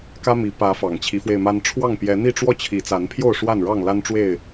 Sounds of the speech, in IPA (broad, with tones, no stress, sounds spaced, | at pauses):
k ä˦ m i˨˦ p ä˨˦ f ɑ˨˩ ŋ t͡ɕʰ i˨˦ f w e˧ ɪ̯ m a˦ n ʈ͡ʂʰ w ɑ˥˨ ŋ p j ɛ˨˦ n̪ i˥˨ ʈ͡ʂ w ɔ˥˨ t͡ɕʰ i˨˦ t͡s a˨˦ n pʰ j o˥˨ ʊ̯ ʂ w a˥˨ n ɻ ɑ˥˨ ŋ l a˦ n ʈ͡ʂ w e˥˨ ɪ̯